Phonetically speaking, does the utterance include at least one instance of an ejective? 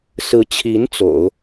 no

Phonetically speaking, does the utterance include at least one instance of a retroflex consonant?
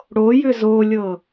yes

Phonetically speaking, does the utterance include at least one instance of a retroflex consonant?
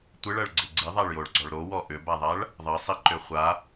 yes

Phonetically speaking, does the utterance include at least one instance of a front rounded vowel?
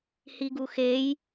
no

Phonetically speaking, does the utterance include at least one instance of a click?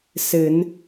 no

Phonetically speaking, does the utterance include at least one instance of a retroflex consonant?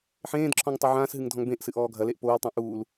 no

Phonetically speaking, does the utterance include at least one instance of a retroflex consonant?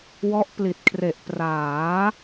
no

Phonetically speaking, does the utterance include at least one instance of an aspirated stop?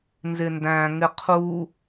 yes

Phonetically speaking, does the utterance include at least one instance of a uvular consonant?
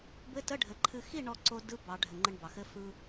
no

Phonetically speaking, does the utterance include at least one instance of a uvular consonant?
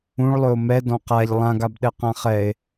yes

